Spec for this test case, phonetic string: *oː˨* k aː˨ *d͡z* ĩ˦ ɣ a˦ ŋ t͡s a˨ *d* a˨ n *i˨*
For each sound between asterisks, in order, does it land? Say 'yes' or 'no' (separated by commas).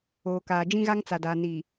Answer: yes, no, yes, yes